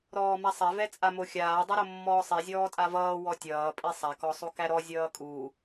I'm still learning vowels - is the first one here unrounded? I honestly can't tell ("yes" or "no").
no